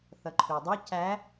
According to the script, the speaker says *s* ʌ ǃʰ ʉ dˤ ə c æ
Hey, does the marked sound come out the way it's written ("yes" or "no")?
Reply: no